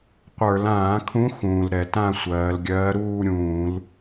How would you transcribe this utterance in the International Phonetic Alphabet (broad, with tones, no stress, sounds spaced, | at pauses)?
qʷ ə˞˧˩˧ l ãː˧˩˧ kʰ ũ˧˥ x ũː˩ l ɾ ɛ˧˩˧ t ã˥˧ sʷ ɜː˩˧ l ɡʲ ɜː˧˥ ɾ uː˥˧ ɾʲ ũː˧˩˧ l